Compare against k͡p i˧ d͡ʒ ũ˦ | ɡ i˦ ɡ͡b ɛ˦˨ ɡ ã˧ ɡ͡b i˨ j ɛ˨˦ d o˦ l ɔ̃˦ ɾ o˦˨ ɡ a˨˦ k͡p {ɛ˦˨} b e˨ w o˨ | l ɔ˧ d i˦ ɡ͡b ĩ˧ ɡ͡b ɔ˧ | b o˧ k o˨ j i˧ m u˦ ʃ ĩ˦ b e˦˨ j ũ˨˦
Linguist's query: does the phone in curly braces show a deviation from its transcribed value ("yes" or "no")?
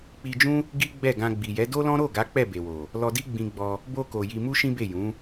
no